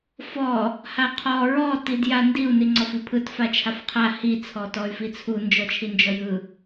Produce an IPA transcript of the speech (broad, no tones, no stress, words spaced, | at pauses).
fɔ | haqʰɔ ɹɔ tidjandiu̯ niŋ͡ǀɔfipʰɯt fat͡ʃʰafqʰa hi t͡sʰɔtɔy̯fit͡sʰu nd͡ʒɔt͡ʃʰind͡ʒɔjɯ